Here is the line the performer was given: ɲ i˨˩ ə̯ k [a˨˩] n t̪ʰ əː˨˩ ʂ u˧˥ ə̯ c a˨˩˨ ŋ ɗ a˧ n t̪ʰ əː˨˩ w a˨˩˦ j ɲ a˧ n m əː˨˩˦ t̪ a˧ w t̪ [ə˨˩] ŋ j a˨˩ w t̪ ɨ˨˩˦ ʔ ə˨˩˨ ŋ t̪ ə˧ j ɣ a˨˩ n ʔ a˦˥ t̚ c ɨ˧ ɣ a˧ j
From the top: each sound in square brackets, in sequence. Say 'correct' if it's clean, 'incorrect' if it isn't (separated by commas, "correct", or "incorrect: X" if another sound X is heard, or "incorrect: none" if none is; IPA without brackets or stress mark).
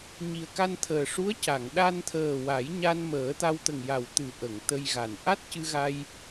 incorrect: a˧, correct